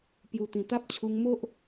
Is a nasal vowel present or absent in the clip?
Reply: present